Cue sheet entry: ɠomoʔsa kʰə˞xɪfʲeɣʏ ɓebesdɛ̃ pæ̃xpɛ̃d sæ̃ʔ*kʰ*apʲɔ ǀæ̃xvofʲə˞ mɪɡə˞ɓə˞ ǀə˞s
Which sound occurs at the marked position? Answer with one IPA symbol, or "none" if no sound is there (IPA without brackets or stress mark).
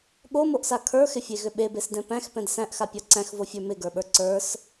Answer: x